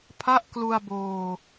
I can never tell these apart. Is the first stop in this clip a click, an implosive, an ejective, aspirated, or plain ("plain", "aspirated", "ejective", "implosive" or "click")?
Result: aspirated